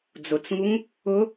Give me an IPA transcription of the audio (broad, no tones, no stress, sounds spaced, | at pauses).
d͡z ʊ t͡s ŋ u ŋ | ʊ